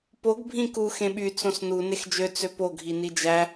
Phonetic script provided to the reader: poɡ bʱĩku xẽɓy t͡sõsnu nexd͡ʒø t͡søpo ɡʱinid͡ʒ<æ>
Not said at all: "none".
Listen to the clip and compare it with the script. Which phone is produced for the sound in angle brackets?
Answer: æ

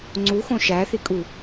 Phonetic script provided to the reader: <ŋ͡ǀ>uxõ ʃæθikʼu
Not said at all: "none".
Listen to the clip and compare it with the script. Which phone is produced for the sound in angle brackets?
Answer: ŋ͡ǀ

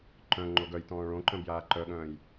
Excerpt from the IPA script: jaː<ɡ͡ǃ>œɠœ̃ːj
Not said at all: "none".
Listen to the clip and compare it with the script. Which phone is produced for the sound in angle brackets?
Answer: ǃ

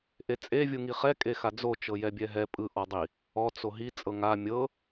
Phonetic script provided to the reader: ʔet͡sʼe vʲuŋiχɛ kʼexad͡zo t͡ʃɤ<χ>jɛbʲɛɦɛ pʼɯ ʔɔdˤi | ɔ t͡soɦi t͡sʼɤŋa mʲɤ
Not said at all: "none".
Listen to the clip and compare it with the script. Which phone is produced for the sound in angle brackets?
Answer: none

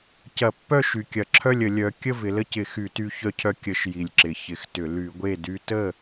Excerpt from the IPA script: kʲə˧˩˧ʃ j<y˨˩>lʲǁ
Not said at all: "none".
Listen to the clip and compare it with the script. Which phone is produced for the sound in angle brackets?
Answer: i˨˩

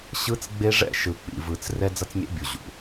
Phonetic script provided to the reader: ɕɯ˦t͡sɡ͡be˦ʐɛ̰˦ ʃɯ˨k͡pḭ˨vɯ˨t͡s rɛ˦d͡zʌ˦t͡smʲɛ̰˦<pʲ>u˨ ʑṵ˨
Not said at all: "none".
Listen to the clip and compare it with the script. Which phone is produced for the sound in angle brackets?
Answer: bʲ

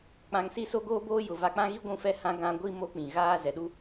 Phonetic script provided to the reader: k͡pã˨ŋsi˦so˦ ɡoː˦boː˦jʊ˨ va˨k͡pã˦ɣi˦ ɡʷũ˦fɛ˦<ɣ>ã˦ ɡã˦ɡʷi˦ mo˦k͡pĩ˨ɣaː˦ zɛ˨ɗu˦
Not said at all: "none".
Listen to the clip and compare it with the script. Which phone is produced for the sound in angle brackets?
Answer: h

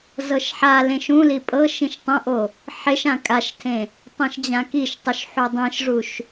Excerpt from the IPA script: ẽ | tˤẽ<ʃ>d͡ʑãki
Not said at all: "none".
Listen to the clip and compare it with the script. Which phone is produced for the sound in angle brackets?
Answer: ʃ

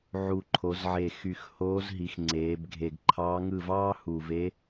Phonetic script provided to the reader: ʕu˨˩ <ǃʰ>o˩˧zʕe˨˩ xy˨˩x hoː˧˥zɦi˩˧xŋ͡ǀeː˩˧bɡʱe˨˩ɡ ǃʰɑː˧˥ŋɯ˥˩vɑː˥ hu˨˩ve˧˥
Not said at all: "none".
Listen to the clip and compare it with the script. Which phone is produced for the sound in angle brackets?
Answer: ǃʰ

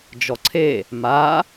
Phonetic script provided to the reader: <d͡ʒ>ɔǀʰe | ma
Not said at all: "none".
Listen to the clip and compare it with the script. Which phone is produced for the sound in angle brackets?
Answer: d͡ʒ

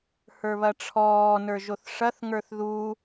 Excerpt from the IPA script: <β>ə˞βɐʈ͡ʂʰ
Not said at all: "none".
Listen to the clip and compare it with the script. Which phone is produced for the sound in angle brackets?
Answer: h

